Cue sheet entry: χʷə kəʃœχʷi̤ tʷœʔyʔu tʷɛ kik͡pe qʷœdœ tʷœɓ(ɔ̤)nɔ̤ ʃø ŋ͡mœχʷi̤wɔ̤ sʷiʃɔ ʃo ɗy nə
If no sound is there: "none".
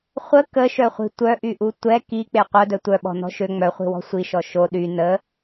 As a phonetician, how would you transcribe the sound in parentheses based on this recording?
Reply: ɔ̤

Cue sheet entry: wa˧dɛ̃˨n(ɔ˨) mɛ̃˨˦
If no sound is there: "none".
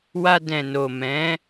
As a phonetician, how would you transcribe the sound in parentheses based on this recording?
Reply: o˨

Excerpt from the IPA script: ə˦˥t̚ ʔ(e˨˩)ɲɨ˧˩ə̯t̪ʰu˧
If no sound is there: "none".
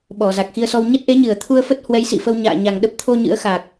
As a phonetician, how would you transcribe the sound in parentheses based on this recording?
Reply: e˨˦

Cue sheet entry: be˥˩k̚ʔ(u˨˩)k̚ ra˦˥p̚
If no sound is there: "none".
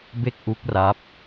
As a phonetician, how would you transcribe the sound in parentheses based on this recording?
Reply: u˦˥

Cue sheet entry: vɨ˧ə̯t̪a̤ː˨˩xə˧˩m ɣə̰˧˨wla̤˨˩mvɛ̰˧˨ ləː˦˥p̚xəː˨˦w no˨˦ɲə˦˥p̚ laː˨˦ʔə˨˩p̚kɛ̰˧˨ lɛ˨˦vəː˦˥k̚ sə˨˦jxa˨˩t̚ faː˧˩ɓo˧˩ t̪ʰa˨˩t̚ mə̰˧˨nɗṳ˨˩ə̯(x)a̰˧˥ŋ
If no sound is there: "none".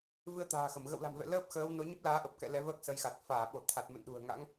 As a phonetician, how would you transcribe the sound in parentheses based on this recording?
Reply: ŋ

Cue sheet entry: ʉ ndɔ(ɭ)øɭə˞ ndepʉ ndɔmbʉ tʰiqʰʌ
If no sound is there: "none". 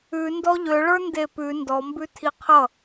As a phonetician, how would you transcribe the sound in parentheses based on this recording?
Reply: ʎ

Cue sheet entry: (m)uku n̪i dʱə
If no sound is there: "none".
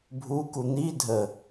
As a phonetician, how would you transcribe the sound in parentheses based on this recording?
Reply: bʱ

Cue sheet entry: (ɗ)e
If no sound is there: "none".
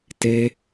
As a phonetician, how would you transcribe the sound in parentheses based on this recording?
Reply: t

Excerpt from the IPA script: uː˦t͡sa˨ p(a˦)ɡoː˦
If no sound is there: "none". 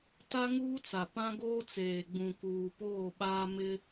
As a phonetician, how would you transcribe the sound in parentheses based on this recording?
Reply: ã˦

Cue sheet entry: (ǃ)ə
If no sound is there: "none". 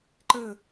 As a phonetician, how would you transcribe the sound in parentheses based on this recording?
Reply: ǃ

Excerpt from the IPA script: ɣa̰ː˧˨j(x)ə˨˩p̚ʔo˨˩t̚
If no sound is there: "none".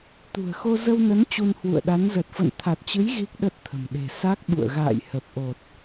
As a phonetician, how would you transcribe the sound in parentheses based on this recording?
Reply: h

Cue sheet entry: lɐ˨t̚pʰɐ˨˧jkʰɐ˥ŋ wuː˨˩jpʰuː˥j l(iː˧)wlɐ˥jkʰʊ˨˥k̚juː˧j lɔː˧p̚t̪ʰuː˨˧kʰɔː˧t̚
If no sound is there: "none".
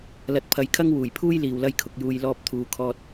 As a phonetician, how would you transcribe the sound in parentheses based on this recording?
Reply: iː˨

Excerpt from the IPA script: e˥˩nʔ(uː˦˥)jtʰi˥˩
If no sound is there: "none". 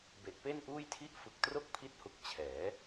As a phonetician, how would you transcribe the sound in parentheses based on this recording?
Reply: uː˥˩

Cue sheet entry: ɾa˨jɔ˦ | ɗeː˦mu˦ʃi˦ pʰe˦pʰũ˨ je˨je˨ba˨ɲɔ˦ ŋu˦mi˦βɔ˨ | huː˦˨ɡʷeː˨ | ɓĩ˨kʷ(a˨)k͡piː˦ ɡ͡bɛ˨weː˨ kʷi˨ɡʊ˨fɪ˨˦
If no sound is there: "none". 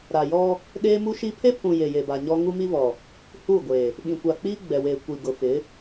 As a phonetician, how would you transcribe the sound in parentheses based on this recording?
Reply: a˨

